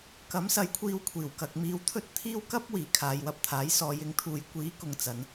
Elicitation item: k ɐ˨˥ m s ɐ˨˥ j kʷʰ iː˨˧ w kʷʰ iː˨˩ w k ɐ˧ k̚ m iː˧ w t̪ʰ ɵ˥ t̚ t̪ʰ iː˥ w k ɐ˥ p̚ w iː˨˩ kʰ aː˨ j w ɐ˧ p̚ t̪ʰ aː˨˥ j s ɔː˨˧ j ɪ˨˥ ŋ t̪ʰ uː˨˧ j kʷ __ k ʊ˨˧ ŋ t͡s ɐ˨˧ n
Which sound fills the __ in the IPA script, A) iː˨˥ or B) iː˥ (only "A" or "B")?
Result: A